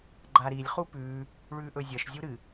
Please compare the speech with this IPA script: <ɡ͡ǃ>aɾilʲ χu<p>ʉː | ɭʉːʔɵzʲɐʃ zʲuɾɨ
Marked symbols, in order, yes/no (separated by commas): yes, yes